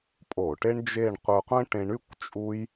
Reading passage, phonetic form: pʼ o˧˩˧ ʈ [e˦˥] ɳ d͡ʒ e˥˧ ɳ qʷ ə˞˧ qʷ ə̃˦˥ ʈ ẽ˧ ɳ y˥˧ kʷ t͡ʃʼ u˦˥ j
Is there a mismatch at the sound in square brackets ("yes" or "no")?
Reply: no